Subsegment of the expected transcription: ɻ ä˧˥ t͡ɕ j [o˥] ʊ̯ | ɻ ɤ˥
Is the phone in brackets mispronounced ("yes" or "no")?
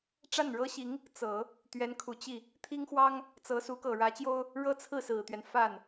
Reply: no